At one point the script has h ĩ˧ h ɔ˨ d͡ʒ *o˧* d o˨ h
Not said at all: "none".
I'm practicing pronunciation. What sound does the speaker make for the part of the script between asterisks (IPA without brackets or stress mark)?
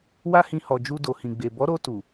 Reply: u˧